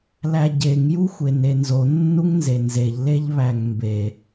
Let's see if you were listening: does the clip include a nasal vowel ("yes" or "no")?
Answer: no